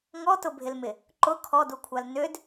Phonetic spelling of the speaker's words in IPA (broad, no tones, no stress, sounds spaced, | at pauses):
ŋ ɔ t ʊ bʱ ɪ l m ɪ | ǃ ʊ kʰ ɔ d u kʷʰ a l n ʏ d